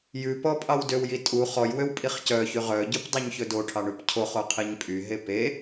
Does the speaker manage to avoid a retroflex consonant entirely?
no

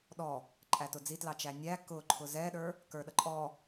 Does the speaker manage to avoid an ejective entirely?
no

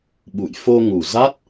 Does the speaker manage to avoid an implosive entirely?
no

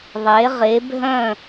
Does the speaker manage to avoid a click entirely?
yes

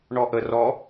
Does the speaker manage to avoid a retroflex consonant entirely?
no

